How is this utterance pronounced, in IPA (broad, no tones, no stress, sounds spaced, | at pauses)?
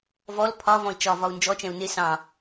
v ɔ l pʰ ɒ v ɔ̃ i̯ t͡ʃ ɒ v ɒ u̯ n d͡ʒ ɔ t͡ʃ ɛ̃ u̯ n ɪ s ɑ̃